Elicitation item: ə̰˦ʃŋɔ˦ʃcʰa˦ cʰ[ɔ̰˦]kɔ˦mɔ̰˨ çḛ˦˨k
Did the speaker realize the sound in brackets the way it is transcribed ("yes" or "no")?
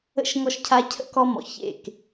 no